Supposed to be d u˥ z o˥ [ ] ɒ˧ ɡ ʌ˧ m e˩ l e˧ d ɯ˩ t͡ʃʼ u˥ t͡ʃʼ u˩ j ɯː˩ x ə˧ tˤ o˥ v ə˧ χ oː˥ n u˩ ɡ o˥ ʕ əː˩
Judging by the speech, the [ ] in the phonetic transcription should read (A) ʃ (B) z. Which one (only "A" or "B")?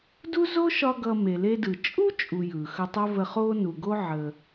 A